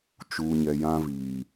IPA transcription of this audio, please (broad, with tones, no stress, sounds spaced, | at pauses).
t͡ʃ uː˨ ɲ ɛ˨ j ã˦ v iː˨